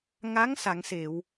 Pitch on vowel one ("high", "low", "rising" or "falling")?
rising